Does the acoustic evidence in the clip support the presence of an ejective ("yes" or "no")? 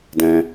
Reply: no